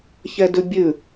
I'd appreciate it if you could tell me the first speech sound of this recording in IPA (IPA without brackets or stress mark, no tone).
ç